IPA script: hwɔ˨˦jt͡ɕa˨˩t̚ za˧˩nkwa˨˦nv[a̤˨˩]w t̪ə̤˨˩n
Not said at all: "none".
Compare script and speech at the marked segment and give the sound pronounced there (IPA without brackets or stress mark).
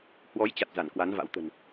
a̰˧˥